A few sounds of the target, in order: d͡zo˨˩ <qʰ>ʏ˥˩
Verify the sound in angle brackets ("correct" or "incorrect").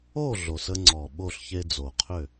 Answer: correct